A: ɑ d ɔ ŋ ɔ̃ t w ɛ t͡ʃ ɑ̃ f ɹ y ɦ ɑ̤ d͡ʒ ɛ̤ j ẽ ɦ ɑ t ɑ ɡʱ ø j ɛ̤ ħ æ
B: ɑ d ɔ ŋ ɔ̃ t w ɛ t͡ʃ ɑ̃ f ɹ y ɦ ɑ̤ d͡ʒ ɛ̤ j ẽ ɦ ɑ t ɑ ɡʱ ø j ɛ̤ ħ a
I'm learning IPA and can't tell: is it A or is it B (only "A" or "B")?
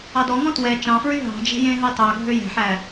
A